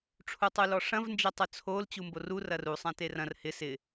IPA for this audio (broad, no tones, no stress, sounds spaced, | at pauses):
ʈ͡ʂʰ u tˤ u l ɔ ʂ ɐ̃ v n d͡ʒ ɛ tˤ ʊ t͡sʰ o l t͡ɕ u m b o r u r ɐ r u sˤ ã t e r ɐ̃ r h ɪ s ɪ